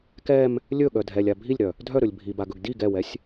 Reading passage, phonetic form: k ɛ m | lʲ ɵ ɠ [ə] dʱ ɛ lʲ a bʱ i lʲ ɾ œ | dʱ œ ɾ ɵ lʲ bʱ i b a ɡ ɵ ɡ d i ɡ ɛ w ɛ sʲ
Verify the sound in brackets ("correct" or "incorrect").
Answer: incorrect